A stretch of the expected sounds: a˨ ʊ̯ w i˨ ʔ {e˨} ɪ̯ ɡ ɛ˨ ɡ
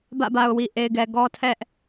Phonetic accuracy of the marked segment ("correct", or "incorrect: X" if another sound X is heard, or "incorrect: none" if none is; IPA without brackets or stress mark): correct